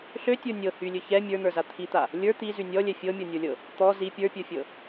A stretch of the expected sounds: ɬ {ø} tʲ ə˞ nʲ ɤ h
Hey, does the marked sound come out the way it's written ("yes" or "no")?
yes